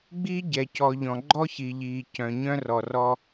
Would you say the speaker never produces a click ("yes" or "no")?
no